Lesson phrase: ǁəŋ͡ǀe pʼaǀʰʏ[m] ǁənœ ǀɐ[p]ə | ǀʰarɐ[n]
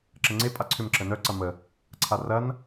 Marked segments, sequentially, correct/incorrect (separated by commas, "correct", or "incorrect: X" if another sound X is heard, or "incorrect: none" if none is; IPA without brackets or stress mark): correct, incorrect: m, correct